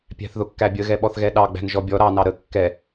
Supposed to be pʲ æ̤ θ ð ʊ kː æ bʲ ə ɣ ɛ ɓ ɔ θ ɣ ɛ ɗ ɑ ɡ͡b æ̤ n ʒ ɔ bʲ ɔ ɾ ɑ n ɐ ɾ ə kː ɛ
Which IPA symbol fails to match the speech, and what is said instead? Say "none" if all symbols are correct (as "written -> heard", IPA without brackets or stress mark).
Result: ɐ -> ɑ